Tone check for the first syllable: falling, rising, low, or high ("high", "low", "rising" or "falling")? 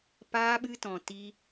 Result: high